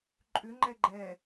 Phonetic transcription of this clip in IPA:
ǃʼʏ ŋ͡ǃɛɡ͡ǃɛ

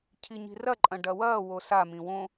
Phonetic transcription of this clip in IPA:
cʰiɲi̤rɐǃʼɐ̃ ɖɐwɐːwo samĩ wõ

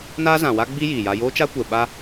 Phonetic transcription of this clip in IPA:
naː˦zã˨wa˦ɡ͡bi˦ jiː˨ja˦ joː˦t͡ʃa˦ kʷɛ˨ɓa˦

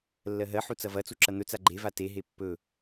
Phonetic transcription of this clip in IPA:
lːɜɦɜħu t͡sɐvɐt͡su ǁɐn̪ɵt͡sa ɡ͡ǃeva teɦe pːɵ

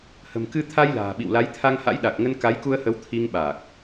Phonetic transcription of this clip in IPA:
hə̤˨˩mkɨ˧ t̪ʰa˧jla̤ː˨˩ ɓḭ˧˨wla˨˦jt̪ʰa˧ŋha̰˧˥j ɗa˨˩k̚ŋə˧n ka˨˦jku˧ə̯hə˨˦w t̪ʰi˧ŋɓa˨˩k̚

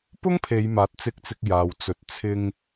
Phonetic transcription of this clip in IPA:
pʊ˥ŋpʰe˨˧jmaː˨˥t̚ t͡sɪ˧k̚t͡sɪ˧k̚ jaː˨wt͡sɵ˨˥t̚ t͡sʰɪ˧ŋ

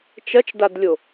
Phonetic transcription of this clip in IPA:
t͡ʃɐt͡ʃdadlʲo

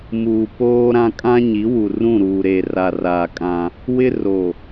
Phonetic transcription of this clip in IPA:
muː˨ poː˦ ɾã˦ kʼã˦ɲi˨˦ wu˨rũ˦˨ ɾuː˨ ɾeː˨ra˨raː˨ kʼã˦ | wɪ˦ ro˨

